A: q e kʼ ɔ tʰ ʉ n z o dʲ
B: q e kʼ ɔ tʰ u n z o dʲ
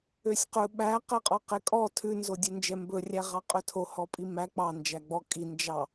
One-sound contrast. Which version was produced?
A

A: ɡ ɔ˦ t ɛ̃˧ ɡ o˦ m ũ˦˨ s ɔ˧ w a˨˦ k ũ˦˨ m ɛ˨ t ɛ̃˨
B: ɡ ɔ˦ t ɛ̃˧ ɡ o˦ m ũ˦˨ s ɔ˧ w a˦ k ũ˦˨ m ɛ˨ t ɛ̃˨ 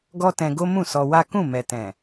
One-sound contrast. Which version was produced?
B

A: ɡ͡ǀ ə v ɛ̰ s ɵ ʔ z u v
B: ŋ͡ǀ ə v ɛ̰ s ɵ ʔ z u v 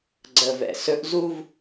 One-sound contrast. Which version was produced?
A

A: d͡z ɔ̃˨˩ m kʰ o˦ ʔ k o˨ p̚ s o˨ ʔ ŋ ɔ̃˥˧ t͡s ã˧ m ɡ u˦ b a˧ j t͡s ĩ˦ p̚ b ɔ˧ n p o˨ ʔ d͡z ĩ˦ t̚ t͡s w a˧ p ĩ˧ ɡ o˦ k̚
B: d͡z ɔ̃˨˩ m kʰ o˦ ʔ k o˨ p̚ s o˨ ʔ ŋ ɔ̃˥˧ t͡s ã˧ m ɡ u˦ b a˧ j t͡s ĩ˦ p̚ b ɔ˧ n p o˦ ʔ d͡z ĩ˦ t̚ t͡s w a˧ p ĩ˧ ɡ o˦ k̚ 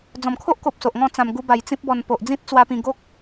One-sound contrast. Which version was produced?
A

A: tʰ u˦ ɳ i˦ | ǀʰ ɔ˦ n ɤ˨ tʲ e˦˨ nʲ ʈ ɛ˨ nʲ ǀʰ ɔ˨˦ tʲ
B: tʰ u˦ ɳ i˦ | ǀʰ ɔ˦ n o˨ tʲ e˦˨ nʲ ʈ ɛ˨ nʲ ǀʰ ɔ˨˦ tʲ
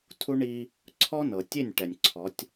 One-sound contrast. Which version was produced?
A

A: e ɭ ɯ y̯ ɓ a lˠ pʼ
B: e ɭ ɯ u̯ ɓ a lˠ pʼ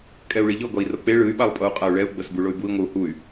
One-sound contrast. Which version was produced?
A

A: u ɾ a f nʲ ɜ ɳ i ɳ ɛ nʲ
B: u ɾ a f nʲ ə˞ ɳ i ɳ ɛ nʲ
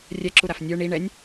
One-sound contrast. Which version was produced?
B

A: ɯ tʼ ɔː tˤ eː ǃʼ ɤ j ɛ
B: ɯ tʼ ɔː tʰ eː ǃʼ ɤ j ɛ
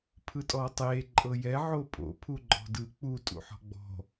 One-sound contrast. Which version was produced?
A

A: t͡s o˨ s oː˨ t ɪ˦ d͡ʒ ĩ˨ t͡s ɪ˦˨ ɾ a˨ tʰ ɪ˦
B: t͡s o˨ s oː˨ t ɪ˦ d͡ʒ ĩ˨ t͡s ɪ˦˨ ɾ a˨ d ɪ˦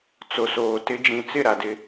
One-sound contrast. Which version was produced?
B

